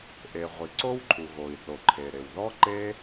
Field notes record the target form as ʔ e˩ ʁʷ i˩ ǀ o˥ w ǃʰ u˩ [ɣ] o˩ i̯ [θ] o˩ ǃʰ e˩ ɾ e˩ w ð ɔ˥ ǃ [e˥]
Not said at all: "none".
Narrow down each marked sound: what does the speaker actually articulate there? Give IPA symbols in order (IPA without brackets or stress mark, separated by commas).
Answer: ɣ, θ, e˥